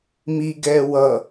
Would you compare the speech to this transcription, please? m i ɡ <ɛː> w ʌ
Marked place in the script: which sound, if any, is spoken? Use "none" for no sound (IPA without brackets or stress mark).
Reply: ɛː